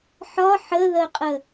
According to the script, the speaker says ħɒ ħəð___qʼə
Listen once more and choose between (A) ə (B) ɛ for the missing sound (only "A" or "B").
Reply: A